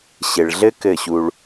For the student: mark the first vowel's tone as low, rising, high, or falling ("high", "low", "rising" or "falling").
low